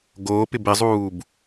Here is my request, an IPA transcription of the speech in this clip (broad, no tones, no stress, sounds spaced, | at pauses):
ɡ oː p ɪ b ɪ zˤ uː b